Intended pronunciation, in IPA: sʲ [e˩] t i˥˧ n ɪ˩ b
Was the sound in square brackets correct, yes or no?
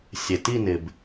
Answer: yes